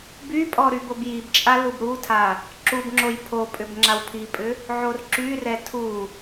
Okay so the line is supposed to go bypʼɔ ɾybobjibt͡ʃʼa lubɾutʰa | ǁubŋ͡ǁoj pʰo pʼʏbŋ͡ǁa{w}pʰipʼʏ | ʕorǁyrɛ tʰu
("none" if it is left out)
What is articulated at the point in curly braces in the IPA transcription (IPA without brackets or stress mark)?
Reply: w